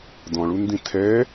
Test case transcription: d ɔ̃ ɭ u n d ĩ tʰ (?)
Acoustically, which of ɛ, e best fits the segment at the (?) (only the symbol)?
ɛ